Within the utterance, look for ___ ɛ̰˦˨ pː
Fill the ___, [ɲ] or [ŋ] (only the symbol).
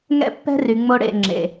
ŋ